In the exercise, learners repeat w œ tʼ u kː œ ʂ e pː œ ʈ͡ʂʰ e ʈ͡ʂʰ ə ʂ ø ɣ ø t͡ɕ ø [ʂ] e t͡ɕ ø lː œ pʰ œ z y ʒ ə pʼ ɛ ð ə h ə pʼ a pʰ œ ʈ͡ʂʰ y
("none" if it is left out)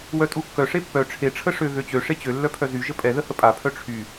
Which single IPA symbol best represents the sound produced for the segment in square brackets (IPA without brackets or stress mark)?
ʂ